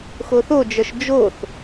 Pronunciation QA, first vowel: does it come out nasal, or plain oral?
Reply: oral